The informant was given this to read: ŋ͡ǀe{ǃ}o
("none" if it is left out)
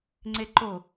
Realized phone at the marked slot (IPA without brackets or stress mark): ǃ